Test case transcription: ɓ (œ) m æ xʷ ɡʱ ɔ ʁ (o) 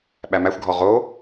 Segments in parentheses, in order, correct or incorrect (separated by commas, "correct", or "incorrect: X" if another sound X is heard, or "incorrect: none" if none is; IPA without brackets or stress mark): incorrect: æ, correct